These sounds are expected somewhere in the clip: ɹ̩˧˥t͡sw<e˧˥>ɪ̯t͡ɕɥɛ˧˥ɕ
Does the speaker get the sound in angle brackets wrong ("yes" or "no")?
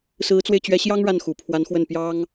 yes